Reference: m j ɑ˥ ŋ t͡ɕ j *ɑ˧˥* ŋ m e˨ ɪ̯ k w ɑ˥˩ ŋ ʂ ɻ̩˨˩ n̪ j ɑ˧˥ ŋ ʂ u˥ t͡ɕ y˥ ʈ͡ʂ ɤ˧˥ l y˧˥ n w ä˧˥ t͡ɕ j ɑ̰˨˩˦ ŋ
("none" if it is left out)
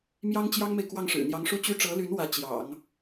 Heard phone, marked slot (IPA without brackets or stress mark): ɑ˥